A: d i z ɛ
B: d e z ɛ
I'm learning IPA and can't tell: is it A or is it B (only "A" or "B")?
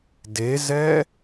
B